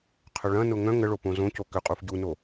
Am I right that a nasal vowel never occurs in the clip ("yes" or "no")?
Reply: no